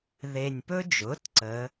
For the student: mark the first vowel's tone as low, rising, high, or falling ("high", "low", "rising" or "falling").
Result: low